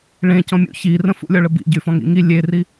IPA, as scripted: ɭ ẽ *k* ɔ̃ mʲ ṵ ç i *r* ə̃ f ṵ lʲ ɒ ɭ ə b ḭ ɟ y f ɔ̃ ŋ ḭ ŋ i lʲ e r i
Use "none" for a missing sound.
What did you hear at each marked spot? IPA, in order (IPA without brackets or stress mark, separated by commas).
c, r